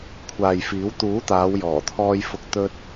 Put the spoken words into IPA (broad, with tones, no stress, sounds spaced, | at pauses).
kʷʰ aː˨ j f iː˨˥ w t̪ uː˨˥ t̪ aː˨˧ w j ɔː˨˩ t̪ʰ ɔː˧ j f ʊ˨ k̚ t̪ ɵ˧ t̚